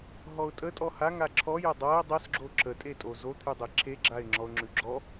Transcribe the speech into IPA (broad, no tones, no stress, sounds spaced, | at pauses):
ɦ ɔ ʊ̯ tʼ ə tʼ ɔ h a ŋ a ǁʰ ɔ j ə dˤ a ɪ̯ dˤ o s ɡ͡ǁ o ǁ ə tʼ e tʼ o z o t̪ʰ ʉ dˤ e ǁʰ e ɡ͡ǁ a ɪ̯ ŋ͡ǁ ɔ ʊ̯ ŋ͡ǁ ʉ ɡ͡ǁ ɔ